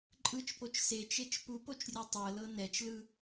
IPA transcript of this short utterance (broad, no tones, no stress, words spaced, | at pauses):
ǃʼɯt͡ʃpot͡ʃ set͡ʃet͡ʃ pupot͡ʃrʲu tˤɤlɤ nɛt͡ʃlɯ